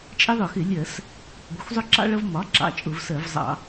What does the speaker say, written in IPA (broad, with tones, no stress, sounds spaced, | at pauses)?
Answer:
t͡ʃʼ ɪ˦ ðˤ ʊ˧˩˧ x ɪ˧˩˧ lʲ ɜ˧˩˧ s | ɡʷ ʌ˩˥ xʷ zˤ ʊ˦ ǁ ɑ̰˦ ɭ ʌ˦ v m ɒ˩˥ ǁ ɑ̰˦˨ t͡ʃʼ ʊ˧˩˧ v s ɜ˧˩˧ v zˤ ɑ̰˧˩˧